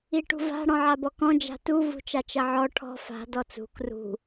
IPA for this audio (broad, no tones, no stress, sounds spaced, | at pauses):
i ʈ ṳ v a̤ ɽ ɔ̃ ʕ a b ɔ k ɔ̃ d͡ʒ a̤ t u v ṳ t͡ʃ a t͡ʃ ɐ ʕ ɔ ʈʰ ɔ̤ f a̤ d ɔ t͡s ṳ k r ṳ